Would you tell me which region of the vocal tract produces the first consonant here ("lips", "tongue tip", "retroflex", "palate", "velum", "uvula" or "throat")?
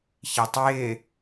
palate